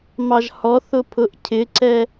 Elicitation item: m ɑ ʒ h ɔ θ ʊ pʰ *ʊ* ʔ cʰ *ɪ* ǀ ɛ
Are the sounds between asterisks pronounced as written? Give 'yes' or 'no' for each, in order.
yes, yes

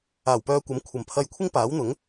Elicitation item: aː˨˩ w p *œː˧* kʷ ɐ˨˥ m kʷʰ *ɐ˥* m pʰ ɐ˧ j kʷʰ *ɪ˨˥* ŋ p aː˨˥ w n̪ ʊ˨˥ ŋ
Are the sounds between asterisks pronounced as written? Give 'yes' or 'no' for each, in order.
yes, no, no

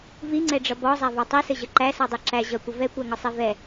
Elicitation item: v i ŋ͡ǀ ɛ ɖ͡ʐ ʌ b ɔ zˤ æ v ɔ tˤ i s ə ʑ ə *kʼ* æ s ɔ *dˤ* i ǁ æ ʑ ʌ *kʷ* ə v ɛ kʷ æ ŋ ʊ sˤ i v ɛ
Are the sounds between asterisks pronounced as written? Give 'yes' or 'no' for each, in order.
no, yes, yes

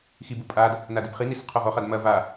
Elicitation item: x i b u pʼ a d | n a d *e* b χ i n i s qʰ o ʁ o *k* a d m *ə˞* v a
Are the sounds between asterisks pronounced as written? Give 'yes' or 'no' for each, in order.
no, no, no

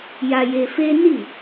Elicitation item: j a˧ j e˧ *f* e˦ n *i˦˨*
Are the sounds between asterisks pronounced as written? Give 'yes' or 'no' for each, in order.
yes, yes

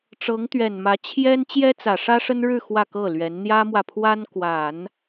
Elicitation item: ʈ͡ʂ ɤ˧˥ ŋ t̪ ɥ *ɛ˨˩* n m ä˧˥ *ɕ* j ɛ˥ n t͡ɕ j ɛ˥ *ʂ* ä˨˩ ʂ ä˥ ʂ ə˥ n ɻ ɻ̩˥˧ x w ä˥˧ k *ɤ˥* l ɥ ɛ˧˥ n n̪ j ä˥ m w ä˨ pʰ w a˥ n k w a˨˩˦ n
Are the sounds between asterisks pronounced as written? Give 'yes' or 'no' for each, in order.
yes, no, no, no

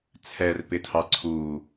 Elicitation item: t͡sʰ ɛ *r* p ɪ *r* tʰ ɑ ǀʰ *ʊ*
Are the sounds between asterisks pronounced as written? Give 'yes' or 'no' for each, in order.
yes, no, no

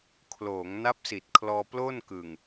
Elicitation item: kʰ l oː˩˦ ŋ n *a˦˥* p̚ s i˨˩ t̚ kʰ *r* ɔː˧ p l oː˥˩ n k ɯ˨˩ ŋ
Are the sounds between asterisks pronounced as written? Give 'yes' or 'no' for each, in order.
yes, no

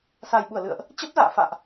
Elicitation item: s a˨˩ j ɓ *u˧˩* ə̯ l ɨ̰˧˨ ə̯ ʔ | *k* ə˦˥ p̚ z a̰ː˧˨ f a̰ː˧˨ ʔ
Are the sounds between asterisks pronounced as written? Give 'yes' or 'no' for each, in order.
yes, no

